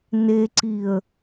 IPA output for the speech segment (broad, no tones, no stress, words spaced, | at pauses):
neǀiə̯